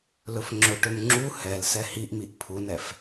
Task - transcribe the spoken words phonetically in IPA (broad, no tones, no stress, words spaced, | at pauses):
lɵfŋ͡ǁɵʈɵm ŋ͡ǁu hɛlsɛ hiʔmiʔ pʰunɛf